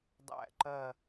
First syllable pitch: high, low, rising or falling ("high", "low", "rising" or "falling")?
falling